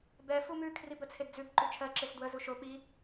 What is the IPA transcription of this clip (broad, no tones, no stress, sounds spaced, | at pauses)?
b ɛ f u m ʉ kʰ r i b ə t͡sʰ e d d͡z ʉ b ǃ ʉ t͡ʃʰ ɜ ǁ e s d w ə z u ʃ o ɓ i